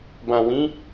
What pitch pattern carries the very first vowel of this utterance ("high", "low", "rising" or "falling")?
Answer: low